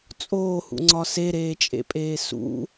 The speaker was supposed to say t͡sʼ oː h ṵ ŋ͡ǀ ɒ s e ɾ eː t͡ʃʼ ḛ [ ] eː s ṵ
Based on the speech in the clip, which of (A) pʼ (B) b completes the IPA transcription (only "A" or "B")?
A